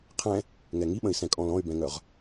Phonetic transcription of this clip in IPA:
qʰɛ̃ | ŋɛŋiɓə̃i̯sɛ̃ kʼɔ̃lɔ̃y̯bɛ̃ŋœʁ

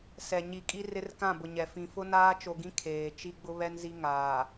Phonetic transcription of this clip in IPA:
sɛ˨ ɲi˨kʼi˦ rɪ˦rkã˦˨bʊ˨ ɲɛ˨ fĩ˨ fʊ˦ naː˦t͡ʃo˨ ɡĩ˦ kʰeː˨ t͡ʃi˦ɡ͡bʊ˦ βɛ˦nzi˦ŋaː˨

